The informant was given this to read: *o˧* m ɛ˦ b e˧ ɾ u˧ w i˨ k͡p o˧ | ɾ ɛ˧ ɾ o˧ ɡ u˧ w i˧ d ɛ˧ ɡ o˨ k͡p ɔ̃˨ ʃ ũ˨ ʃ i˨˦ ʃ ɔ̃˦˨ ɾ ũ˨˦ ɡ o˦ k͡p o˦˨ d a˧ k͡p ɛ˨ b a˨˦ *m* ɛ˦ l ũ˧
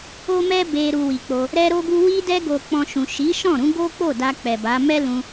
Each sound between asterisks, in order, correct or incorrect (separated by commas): incorrect, correct